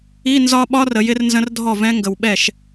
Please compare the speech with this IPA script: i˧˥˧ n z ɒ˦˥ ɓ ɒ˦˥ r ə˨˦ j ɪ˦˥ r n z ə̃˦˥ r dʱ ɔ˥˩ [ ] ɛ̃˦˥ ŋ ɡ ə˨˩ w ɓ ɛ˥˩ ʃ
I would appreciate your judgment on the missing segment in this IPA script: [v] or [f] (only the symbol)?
v